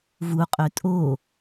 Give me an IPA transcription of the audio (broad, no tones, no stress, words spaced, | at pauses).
vuqʼø tʼo